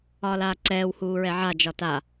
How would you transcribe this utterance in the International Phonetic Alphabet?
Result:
ɒː l aː ǀ ɛː w h uː ɹ ɛ ʕ a d͡ʒ ɒ t a

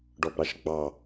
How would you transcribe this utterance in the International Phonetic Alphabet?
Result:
ɖ ɔ b ɾ ɑ ʃ ɡ͡b ɑ

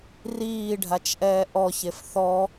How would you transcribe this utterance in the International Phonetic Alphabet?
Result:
r iː ɖʱ a t͡ʃ ʔ ɛː ʔ ɔ ç e f θ ɔ

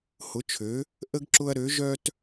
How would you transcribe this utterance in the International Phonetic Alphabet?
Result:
h ʊ˨˦ t͡ʃʰ ø˨˦ | ʔ ə˦ ɡ ǁ ʊ˦ ɐ̯ ɾ ø˨˦ ʒ œ˦ t

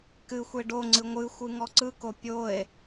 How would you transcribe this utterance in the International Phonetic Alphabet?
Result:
k ɨ xʷ e ɖ o ŋ͡ǀ ɨ ŋʷ ɨ xʷ ɨ ŋ ɔ ǀ ɯ k o pʲ o e̯

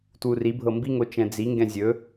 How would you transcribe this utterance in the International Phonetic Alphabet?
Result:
t w u r i bʱ ɤ m b i ŋ o t͡ʃ ɛ̃ d͡z i ŋ ɡ ɛ̃ zʲ ɵ

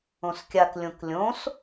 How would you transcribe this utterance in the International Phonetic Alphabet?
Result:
õ s kʲ a k lʲ õ k lʲ õ s

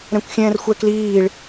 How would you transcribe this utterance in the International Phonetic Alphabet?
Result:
ɾ ɛ̃ kʷ xʲ ɛ̃ː r xʷ ɛ k l iː ɭ

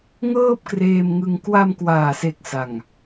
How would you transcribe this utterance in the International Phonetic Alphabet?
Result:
ŋ ɤː˥˩ p̚ k r eː˧ m ŋ ɯ˧ ŋ k w a˧ m k w aː˨˩ s e˨˩ k̚ s a˨˩ ŋ

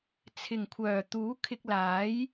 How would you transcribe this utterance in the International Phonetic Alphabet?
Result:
t͡sʰ ɪ˨˩ ŋ kʷʰ œː˨˩ t̪ uː˨˥ kʰ ɪ˧ k̚ l aː˨˥ j

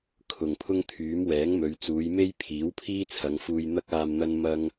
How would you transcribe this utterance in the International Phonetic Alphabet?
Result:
kʰ ʊ˨ ŋ pʰ ʊ˥ ŋ t̪ʰ yː˨˥ m w ɛː˨˥ ŋ m ɵ˨˧ ɥ t͡s uː˨˧ j m e˥ j pʰ iː˨˥ w pʰ iː˥ t͡sʰ ɐ˨˧ ŋ f uː˧ j n̪ ɐ˥ k̚ aː˧ m n̪ ɐ˥ n m ɐ˥ ŋ

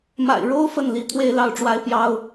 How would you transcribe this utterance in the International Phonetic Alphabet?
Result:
m a̰˨˩ ɪ̯ ɻ o˦ ʊ̯ f ə˥˨ n l i˨˦ t̪ʰ w e˦ ɪ̯ l ɑ˥˨ ʊ̯ ʈ͡ʂ w a˦ ɪ̯ p j ɑ˦ ʊ̯

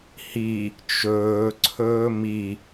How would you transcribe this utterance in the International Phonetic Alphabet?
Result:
h i | t͡ʃ ɵː ǀʰ ɵː m i

